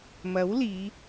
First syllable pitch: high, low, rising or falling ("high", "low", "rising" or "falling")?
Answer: rising